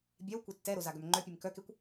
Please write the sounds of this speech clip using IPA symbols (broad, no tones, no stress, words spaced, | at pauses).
bʲɛwkʷɛ tːɛɾo zaɡœmŋ͡ǃœpʲem kœkekʷ